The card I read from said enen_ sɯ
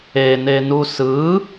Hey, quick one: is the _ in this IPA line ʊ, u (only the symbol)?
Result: u